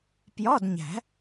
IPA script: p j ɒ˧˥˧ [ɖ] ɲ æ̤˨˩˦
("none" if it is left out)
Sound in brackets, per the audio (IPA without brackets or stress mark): d